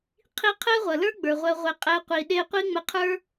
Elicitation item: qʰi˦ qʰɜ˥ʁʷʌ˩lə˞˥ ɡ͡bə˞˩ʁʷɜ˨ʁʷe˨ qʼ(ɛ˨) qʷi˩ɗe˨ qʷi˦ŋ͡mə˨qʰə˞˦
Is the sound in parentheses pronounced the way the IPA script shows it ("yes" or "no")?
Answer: yes